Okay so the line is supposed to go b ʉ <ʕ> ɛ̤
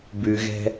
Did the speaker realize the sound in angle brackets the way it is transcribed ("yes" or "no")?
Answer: no